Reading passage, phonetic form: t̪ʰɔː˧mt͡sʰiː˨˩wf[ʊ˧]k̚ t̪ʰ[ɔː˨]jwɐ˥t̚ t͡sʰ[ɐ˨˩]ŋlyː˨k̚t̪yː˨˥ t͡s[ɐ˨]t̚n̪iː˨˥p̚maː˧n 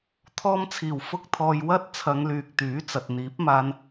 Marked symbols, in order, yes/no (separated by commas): yes, no, no, yes